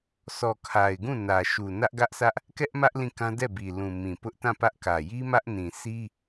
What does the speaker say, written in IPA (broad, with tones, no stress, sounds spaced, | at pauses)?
s ɔ˨ kʰ a˨ ɪ̯ ɡ ũ˦˨ n ä˨ ʃ u˨ n ä˦ ʔ ɡ ä˦ ʔ s ä˦ ʔ | k ɛ˦ ʔ m ä˦ ʔ l ĩ˦˨ k ã˦ d ɛ˦˨ b i˨ l ũ˨ m ĩ˨ p ʊ˦ ʔ t ã˦˨ p ä˦ ʔ k ä˨ j i˦ m ä˦ ʔ n ĩ˨ s i˦